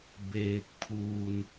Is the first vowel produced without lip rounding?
yes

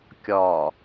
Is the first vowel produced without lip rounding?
no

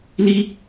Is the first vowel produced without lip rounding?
yes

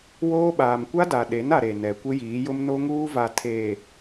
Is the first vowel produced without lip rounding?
no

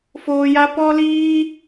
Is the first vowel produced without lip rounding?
no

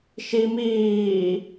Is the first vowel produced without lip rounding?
yes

